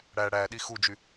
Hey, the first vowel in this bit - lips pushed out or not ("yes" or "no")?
no